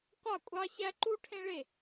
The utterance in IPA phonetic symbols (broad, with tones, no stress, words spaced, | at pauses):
qʷɑ˥˩kʷʼɑ˦çæ˦ ǃu˦ʈʰẽ˦ ɭe˥˩